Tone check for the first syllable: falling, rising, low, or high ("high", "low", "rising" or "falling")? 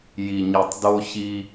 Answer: low